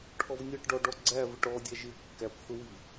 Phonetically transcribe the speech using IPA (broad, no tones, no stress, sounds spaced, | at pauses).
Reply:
ʈʰ ɔ v nʲ ʌ ʈ ɖ ɔ ɖ ɔ ɡ͡ǀ æ v ɪ ʈ ɔ dʲ æ ʒ ɪ kː æ p θ ʊ w i